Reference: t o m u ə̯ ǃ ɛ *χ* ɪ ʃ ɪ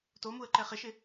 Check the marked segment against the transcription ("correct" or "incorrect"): correct